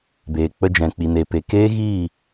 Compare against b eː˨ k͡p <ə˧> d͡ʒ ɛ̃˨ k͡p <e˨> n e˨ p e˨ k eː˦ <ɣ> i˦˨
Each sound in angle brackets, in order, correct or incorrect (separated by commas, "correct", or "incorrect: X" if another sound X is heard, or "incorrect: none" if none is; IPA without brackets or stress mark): correct, incorrect: i˨, correct